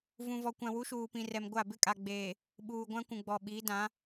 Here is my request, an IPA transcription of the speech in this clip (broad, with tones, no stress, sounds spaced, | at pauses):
v ũ˨ v ɔ˨ kʷ ã˨ w u˨˦ ʃ uː˨ p ĩ˨ r ɛ˨ m ɡʷ a˦˨ b ɪ˦ kʼ a˨ ɡ͡b eː˨ | ɓ uː˨ ɡʷ ã˦ kʷ ũ˨ ɡ͡b ɔ˨ ɓ iː˨˦ d ã˨˦